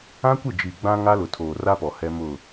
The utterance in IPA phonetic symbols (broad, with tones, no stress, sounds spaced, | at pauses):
ã˦ kʷ ɪ˦˨ d͡ʒ i˨ ɡ͡b ã˦ ŋ a˦ l ʊ˨ tʰ oː˨ r a˦ p ɔ˨ h ɛ˦ m ʊ˦˨